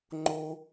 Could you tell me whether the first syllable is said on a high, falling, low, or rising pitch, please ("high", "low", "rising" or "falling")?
high